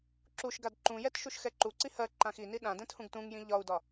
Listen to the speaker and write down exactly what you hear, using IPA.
ǁuʃɡad ǃũjɛt ʃuʃxɛǃuǀi hɜ ǃãxini ɗãdɛ̃t hũɡtũŋjĩ ʎɒu̯dɒ

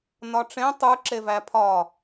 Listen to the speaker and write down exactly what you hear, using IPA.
nɒʈ͡ʂẽ tˤu ǁevæpʰɒ

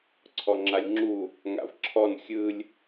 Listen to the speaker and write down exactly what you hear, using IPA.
ǀʰɔŋ͡ǁalʲŋ͡ǁu | ŋa̰vǁʰɔn xʲɯlʲ

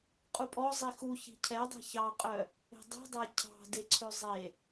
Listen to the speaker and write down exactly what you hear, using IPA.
qʼupʼɔ zˤixu çi̤cʰɛdˤe̤ çɑqʼœ | e̤dˤi̤dˤæ cʰɑ̤ deǀʰøzˤe

